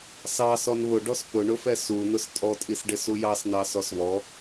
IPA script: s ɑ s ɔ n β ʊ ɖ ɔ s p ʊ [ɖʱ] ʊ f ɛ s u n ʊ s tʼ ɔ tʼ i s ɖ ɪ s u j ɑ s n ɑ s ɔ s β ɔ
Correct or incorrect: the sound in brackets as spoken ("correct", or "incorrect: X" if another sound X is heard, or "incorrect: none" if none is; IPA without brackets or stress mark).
incorrect: ɳ